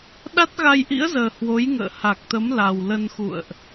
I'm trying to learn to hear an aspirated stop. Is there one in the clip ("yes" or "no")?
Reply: no